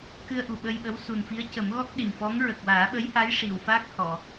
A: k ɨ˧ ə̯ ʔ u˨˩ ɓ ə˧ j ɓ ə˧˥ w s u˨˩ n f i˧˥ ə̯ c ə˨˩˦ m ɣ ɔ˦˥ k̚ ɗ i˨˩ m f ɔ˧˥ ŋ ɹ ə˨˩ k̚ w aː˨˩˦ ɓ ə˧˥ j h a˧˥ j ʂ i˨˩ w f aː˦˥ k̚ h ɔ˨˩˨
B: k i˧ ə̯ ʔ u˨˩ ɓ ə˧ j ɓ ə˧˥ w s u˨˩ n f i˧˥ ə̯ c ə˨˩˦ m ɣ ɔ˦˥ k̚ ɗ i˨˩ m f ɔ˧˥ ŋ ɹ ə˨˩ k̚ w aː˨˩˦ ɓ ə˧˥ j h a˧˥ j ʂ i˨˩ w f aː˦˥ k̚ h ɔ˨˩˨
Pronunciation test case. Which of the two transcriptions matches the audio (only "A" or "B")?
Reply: A